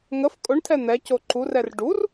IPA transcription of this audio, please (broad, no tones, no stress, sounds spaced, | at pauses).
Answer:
ŋ ə f kʼ ʊ ɳ tʰ ɛ n̪ ɛ c o ǃ u r ɛ r ɖ u r